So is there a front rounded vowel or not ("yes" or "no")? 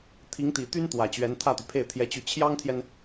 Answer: yes